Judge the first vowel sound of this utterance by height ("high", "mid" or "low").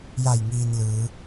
low